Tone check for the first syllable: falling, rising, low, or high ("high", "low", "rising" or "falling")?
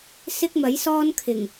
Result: high